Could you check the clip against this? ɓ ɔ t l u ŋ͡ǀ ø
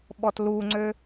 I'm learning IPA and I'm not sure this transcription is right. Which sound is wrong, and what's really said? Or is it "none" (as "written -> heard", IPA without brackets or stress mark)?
none